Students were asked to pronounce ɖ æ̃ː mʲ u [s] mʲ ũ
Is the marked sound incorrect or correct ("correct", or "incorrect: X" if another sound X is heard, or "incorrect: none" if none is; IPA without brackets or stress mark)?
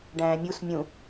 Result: correct